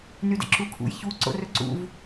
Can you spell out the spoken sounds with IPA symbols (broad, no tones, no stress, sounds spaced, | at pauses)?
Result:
n y d ə̰ ǁ u kʰ ṵ j ç u ǀ o̰ r ɵ ǀ ṵ v